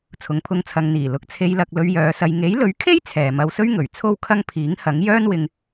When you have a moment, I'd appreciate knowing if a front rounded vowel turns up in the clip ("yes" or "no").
yes